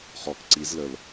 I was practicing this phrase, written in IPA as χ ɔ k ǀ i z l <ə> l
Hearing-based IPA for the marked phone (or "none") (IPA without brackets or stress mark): ə